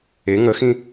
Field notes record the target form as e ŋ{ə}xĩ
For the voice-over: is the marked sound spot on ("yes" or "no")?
yes